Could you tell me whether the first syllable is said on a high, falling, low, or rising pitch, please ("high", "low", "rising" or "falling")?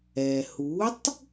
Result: low